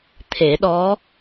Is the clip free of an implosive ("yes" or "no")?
no